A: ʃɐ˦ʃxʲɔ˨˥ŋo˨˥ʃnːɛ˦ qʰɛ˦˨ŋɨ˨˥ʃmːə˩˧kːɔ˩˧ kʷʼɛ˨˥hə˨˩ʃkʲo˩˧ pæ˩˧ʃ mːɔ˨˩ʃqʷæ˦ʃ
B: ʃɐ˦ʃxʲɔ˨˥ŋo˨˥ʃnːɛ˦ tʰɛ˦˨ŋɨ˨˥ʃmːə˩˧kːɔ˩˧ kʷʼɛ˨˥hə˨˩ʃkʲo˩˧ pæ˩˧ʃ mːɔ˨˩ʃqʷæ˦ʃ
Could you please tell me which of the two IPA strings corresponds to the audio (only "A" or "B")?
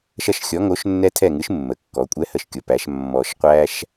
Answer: B